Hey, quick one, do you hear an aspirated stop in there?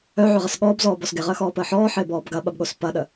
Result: no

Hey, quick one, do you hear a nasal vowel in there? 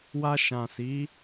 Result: yes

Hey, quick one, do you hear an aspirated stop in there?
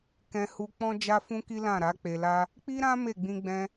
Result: no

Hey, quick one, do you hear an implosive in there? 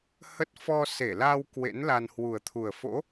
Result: no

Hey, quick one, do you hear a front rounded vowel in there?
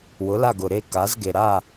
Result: no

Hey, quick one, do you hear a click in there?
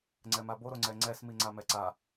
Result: yes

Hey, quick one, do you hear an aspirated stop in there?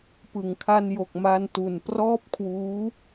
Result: yes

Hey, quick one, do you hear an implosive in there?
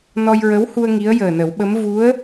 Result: yes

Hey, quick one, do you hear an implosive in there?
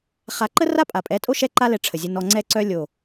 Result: no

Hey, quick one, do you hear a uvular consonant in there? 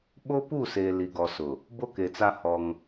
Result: no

